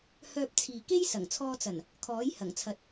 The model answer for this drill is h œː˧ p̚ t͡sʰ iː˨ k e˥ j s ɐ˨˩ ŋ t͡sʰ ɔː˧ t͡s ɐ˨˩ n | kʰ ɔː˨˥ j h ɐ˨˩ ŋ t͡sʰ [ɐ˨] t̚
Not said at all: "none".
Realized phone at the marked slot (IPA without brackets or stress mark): ɐ˨